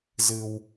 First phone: z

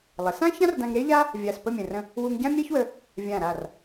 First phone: lˠ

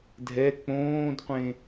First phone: dʱ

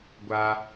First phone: ɡʷ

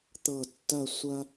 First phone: t̪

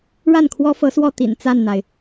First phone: ɻ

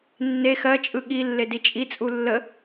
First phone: nː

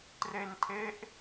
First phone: t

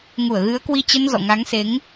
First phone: ŋ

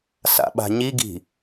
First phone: s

